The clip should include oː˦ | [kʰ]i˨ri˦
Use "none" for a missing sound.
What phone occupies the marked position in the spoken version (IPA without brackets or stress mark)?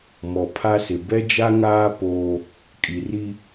kʼ